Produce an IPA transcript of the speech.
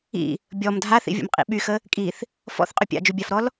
ḭ | bʲ ɔ m dʱ a θ ḭ vʲ o̰ m qʼ ḭ ɓ y x ə | kʼ i θ | f ɔ̰ θ qʼ ʏ pʲ a̰ d͡ʒ u bʲ a f ɾ ɔ l

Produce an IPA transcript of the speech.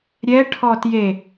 ɾʲ ɛ ʈʰ ɔ t j e

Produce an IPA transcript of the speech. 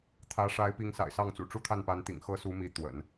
t̪ʰ ä˧˥ ʂ a˧˥ ɪ̯ p i˧˥ ŋ s a̰˨˩ ɪ̯ s ɑ˥˩ ŋ t͡s ṵ˨˩ ʈ͡ʂ u˥ t̪ʰ a˥˩ n p a˧˥ n t̪ ḭ˨˩ ŋ x ɤ˥ s u˧˥ m i˧˥ t̪ w ə̰˨˩˦ n

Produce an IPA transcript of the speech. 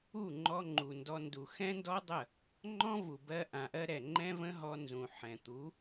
u˦˨ ŋ͡ǃ ɔ˧ ŋ͡ǃ u˨ n d ɔ˧ n d u˨ x ɛ̃˦ n d ɔ˦ dˤ ə˦˨ | ŋ͡ǃ ɔ̃˦ v u˨ b ɜ˧ ʔ ã˨ ʔ ɜ˧ ɾ ɛ˨ ŋ͡ǃ ɛ̃˦ v ə̃˦ ɦ ɔ˧ n z ũ˨ ħ ɛ̃˨ t̪ u˨˦

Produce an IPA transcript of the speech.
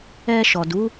ɛ˧ ʃ ɔ˨ d u˨˦

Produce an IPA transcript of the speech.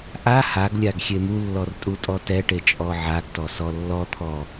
ʔ a h a ɡ lʲ a ɡ xʲ e m u lː ɔ r tʼ u tʼ ɔ t ɛ ʈ e t͡ʃʼ ɔ ʕ a ɡ t ɔ s ɔ lː ɔ t̪ʰ ɔ

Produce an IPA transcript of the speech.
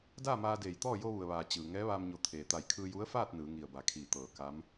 d aː˥˨ m aː˧ d eː˧˩ j t̪ ɔː˥˨ j o˧ ʋ u˩ ə̯ ʋ aː˩ t͡ɕ ɯː˩ ŋ ɛː˧˥ ʋ aː˧ m ɲ o˧˩ t̪ʰ eː˩ t̪ a˧˩ j kʰ ɯː˧ j u˧˥ ə̯ f aː˥˨ t̚ n ɯː˩˧ ŋ i˧˩ ə̯ b a˧˩ kʰ iː˧˩ t̪ ɤː˧˩ k a˧˥ m

